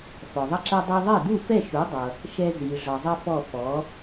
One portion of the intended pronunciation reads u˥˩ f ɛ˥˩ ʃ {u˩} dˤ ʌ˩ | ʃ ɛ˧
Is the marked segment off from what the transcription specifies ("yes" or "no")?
yes